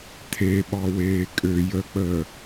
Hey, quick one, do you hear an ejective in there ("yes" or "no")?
yes